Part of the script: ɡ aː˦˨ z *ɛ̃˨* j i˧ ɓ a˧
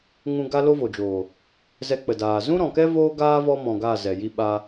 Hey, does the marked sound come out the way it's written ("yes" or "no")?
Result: no